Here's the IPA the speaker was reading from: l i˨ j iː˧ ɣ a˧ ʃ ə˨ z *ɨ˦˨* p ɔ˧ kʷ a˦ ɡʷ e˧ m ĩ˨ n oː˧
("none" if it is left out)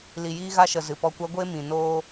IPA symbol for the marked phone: ɨ˨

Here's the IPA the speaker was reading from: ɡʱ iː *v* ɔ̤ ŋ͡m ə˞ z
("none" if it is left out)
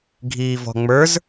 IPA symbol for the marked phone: v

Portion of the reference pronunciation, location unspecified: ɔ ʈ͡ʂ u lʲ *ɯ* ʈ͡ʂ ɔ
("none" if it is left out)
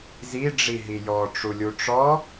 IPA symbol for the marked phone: u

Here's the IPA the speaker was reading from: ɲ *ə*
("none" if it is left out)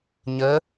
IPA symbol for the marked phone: ə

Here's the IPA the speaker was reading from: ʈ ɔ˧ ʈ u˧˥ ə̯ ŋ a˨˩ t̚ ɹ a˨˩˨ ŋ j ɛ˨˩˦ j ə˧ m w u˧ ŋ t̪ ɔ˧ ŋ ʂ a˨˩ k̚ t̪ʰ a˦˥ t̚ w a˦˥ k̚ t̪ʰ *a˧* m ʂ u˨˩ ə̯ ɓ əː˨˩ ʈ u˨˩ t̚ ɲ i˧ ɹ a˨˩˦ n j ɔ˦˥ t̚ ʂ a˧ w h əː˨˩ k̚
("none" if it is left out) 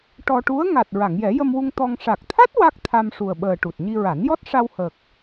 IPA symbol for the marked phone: a˧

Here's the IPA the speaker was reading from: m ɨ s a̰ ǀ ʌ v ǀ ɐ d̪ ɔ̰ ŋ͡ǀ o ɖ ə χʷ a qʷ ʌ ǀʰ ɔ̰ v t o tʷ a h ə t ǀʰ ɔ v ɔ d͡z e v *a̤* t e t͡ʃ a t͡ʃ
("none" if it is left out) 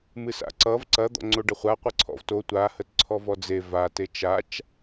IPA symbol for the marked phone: a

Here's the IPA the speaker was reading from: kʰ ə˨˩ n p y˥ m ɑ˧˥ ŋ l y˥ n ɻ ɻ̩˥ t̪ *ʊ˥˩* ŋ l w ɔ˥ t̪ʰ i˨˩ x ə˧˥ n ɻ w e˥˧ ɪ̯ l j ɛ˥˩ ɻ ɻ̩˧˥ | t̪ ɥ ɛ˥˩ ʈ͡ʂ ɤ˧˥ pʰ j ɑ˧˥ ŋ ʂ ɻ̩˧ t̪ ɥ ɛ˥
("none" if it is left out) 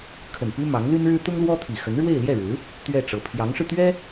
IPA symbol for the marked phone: ʊ˥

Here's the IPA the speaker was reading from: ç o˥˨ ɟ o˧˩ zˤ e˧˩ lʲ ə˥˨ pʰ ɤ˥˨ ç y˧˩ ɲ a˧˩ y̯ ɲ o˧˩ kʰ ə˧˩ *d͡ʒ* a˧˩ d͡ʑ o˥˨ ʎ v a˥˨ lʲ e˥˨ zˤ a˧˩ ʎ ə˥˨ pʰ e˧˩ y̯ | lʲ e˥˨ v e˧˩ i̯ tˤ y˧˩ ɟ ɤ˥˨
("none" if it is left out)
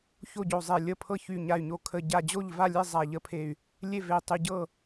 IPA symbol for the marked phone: ɟ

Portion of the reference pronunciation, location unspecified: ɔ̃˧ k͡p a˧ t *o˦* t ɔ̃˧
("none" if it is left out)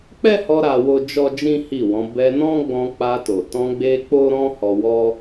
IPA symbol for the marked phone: o˨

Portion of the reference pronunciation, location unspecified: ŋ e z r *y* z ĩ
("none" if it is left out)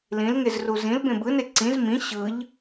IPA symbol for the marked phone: u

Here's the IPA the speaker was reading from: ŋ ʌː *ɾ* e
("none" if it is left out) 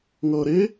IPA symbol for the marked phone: ɾ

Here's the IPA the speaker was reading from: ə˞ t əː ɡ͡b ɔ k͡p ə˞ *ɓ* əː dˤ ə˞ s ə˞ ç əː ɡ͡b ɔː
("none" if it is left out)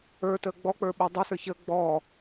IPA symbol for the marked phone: ɓ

